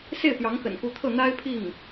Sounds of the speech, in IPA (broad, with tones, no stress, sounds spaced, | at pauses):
s e˥˩ ɪ̯ p j ɑ˧˥ ŋ x ə̰˨˩ n k u˧˥ t̪ʰ ɤ˥˩ n̪ a˥ ɪ̯ pʰ i˥˩ ŋ